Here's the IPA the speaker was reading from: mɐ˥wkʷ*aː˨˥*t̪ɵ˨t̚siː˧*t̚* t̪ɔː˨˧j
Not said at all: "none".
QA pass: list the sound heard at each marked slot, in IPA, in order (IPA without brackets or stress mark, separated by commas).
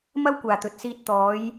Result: aː˨, t̚